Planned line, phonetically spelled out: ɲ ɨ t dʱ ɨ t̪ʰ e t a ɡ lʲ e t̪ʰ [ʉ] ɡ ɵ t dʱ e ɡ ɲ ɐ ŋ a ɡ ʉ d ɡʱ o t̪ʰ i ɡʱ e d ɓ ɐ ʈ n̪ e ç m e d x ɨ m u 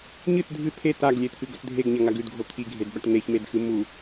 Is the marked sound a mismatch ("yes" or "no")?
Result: yes